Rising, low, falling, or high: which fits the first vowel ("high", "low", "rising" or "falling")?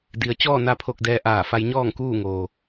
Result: low